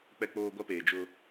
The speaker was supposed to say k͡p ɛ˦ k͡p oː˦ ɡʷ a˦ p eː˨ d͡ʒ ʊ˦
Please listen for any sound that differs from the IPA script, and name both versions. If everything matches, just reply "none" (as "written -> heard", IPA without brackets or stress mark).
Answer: none